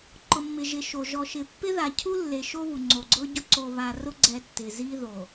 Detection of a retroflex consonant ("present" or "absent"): absent